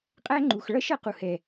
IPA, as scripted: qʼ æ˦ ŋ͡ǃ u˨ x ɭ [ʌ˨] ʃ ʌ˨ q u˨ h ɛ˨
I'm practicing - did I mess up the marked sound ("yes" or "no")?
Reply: yes